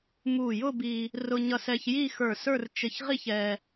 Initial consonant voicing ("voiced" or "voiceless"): voiced